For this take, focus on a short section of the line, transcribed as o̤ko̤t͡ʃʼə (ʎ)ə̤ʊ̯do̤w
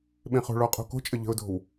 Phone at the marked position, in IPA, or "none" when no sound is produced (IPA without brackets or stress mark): ʎ